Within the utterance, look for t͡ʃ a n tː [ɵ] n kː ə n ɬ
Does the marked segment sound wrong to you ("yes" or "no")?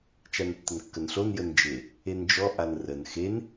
yes